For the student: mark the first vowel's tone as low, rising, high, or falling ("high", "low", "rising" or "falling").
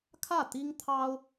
falling